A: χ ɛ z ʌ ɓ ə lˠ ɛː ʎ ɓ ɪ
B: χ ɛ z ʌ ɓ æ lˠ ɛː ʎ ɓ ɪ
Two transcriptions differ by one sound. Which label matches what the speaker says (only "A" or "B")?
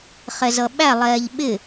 B